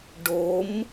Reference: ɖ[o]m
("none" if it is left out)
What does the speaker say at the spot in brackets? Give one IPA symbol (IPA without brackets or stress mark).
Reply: o